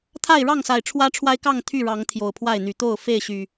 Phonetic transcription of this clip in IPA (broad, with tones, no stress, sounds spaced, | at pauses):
t̪ʰ a˥˨ ɪ̯ ɻ ɑ˥˨ ŋ s a˨˩ ɪ̯ ʈ͡ʂʰ w ä˦ ʈ͡ʂʰ w a˦ ɪ̯ k ɑ˥˨ ŋ t̪ʰ y˥˨ ɻ ɑ˨˦ ŋ t̪ʰ j o˨˩ ʊ̯ pʰ w a˥˨ ɪ̯ n̪ y˨˩ t̪ o˥˨ ʊ̯ f e˥˨ ɪ̯ ɕ y˨˩